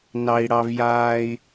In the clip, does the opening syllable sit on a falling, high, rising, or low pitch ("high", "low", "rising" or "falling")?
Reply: low